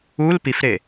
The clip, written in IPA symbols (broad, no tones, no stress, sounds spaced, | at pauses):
u l p i f ɾ e